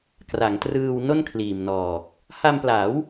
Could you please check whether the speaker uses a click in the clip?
no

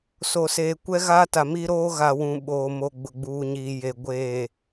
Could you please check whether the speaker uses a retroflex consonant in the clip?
no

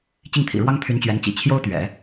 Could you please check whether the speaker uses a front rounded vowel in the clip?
yes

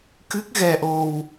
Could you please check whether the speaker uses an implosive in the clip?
no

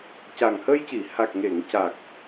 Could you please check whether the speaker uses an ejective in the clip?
no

